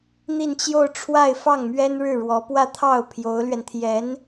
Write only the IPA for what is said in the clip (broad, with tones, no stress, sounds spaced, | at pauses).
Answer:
n̪ i˥˧ n t͡ɕ j o˥˧ ʊ̯ ʈ͡ʂʰ w a˥˧ ɪ̯ f ɑ˥˩ ŋ m ɥ ɛ˥ n ɻ ɻ̩˥˩ ɻ w ɔ˧˥ p w ä˥˧ t̪ʰ ɑ˥˩ ʊ̯ pʰ j o˧˥ ʊ̯ l ɥ ɛ˧ n t̪ʰ j ɛ˧˥ n